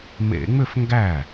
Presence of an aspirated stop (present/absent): absent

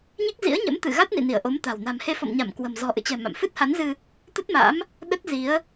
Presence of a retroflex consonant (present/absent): absent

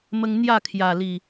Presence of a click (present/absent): absent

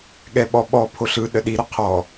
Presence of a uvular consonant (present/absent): present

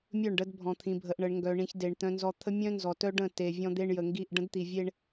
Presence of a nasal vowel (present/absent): present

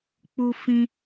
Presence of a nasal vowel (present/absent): present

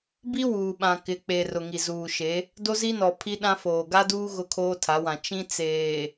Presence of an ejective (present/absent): absent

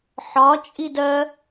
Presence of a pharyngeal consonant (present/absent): present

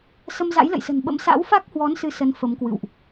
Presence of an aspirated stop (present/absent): absent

